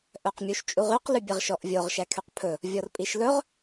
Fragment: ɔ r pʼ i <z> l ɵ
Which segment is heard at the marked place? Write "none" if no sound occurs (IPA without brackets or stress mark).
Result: ʃ